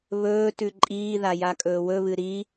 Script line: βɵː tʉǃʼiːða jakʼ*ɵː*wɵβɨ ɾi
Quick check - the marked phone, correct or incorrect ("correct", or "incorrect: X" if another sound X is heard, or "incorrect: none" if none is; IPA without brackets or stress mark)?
correct